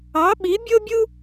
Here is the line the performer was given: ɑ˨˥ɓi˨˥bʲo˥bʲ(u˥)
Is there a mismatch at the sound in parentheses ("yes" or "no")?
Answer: no